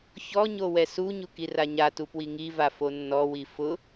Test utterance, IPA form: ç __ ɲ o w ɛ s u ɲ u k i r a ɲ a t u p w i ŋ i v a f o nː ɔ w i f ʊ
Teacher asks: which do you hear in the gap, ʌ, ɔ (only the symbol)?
ɔ